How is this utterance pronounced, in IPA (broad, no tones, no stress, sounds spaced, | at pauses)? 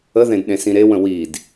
ə ð ẽ d ɗ ẽ s ĩ ɾ e w ə̃ w i d